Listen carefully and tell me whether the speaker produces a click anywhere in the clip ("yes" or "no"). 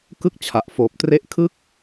no